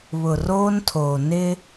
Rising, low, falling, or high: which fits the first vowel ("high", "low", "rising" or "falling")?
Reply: low